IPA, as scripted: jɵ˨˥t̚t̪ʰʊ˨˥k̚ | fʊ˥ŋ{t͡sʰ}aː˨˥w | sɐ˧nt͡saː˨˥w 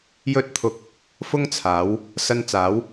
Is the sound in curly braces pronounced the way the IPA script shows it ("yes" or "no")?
yes